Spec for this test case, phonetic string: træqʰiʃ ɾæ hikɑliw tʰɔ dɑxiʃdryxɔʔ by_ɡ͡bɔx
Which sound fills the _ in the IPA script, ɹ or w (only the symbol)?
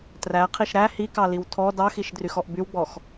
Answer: w